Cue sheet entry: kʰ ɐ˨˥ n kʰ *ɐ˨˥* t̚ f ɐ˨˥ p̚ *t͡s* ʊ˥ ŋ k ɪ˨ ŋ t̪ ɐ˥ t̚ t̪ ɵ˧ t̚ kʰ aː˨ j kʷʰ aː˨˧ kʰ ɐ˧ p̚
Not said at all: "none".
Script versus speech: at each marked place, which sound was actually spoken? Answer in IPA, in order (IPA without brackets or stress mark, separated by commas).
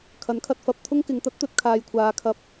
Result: ɐ˧, t̪ʰ